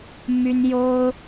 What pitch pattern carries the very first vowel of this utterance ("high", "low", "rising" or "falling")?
high